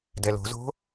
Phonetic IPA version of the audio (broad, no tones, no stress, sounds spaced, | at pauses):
d ɛ l o̤ z o̤